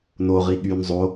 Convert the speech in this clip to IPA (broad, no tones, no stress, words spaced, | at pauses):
no ʁiɠyn zˤo